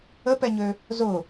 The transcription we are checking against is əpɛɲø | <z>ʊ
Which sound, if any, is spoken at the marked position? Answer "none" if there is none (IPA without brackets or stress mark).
z